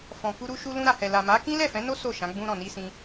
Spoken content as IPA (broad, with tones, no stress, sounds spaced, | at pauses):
f ɔ̃˨ k u˧ ɾ u˧ ʃ u˧ l ũ˧ ɾ a˨ h ɛ˨ l a˨ m a˨˦ k ĩ˦ l ɛ˦˨ f ɛ̃˨˦ n o˦ s o˦˨ ʃ ã˨˦ ɡ͡b ũ˧ ɾ ɔ̃˨ n i˧ s ĩ˦